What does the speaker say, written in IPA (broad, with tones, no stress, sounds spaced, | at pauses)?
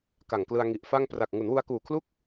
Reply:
k a˨˩ ŋ k l ɯ˧ a̯ ŋ i˨˩ ʔ f a˥˩ ŋ p r a˨˩ k̚ ŋ u˩˦ n w u˧ a̯ k uː˨˩ kʰ l u˥˩ k̚